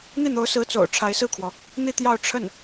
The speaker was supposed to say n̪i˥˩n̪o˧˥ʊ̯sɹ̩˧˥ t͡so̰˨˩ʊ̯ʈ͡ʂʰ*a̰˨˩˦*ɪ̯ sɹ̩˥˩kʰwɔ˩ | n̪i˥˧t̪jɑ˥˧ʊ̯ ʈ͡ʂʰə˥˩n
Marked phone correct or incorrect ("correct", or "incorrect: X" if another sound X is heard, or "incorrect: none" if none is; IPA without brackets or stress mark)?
incorrect: a˧˥